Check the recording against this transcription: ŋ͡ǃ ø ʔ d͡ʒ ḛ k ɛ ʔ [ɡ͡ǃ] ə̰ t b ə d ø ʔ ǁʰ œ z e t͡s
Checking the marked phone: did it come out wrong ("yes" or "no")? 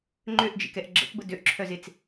yes